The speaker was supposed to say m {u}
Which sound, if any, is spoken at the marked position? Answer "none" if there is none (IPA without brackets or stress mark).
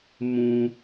ũ